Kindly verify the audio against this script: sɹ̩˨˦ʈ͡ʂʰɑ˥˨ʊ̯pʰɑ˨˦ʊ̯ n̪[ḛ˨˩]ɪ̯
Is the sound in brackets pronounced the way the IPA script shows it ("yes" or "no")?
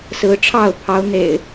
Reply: yes